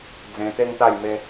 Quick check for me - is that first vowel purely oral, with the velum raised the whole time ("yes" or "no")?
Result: no